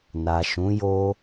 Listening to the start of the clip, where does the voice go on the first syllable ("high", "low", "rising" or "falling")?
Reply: low